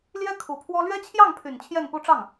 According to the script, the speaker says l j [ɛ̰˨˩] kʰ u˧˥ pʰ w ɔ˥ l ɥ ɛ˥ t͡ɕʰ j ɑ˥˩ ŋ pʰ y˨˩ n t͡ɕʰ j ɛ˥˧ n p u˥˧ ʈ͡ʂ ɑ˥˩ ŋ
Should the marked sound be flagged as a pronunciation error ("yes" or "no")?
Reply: yes